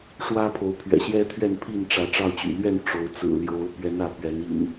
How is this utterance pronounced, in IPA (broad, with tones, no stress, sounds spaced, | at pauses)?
ʂ w ä˦ pʰ o˨˦ ʊ̯ pʰ ɥ ɛ̰˨˩ ɕ j ɛ˦ t̪ʰ ɥ ɛ˥˨ n pʰ i˥˨ n ʈ͡ʂ ä˨˦ ʈ͡ʂ ɑ˥˨ ʊ̯ t͡ɕ y̰˨˩ l ɥ ɛ˥˨ n ʈ͡ʂ o˨˦ ʊ̯ t͡s ɹ̩˨˩ l j o˨˦ ʊ̯ p ɥ ɛ˨˦ n ä˨˦ p ɥ ɛ˨˦ n ḭ˨˩ n